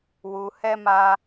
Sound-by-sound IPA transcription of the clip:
wu˧ hɛ˦ma˦

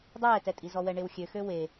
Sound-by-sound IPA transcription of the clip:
dˤɛːtɛtʼi zɔwɛɳewxʲø xøwe

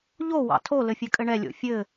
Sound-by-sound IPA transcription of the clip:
ʎowɑ̰ tʰolɘ fʲɘkʼɘɳɛlʲo̰ fʲɘ

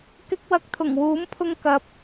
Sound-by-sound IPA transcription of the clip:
kɪ˧k̚wɐ˨k̚t̪ʰʊ˨˩ŋ wuː˨˥mpʰʊ˧ŋ kɐ˨˥p̚

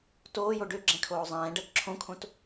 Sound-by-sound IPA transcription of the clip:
toːjo ɖøɡ͡ǁɛ̃kʰoː zˤɛ̃ːɖɜk ǁʰõkʰõt

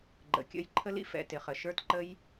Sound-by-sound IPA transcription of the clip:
ɡ͡ǃə̰˩˧˩kʲə̰˥˧j ǃʰə˦˥lḭ˥˧ fɛ̰˧˩˧ tɪ˧˩˧χə˧˩˧ ʃə˞˦˥tǃə˦˥j

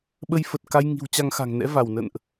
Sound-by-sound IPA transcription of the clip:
ɓə˧jfə˨˩t̚ka˧jŋi̤˨˩w t͡ɕa˧ŋxa̤˨˩ŋnɛ̰˧˥ va˧˩wnə̰˧˨nʔ

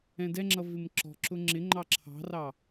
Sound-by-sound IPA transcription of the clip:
ɛ̃dɛŋ͡ǁʌ vɪmǁɔ̤ǁʊ ŋ͡ǁɪ ŋ͡ǃɑǁʰɑ̤rɑ

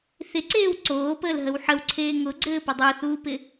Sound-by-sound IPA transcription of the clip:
θɪǀeːw ǀoːpəːlɦəw ħəwǀʰeː ŋʊɡ͡ǀɘːpɪ dˤuθuːpɪ

